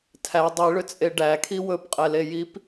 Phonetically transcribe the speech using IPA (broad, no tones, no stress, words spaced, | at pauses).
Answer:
tʰæ dˤiɭʏt͡sʼe ɖækʰi wɵpqʼɛlejip